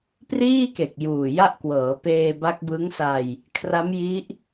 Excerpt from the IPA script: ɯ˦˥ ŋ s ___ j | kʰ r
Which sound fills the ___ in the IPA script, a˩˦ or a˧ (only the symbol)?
a˧